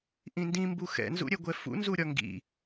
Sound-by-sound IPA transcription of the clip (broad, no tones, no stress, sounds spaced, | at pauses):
ʔ ĩ n d ĩ m b u x ɛ̰ n z ṵ ɾʲ ɛ ɡʷ ɛ f ṵ n z u ɾʲ ɒ ŋ ɡ ḭ